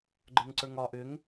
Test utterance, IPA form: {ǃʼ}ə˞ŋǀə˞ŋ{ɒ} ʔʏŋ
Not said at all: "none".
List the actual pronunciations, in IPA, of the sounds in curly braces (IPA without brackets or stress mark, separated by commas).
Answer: ɡ͡ǃ, ɒ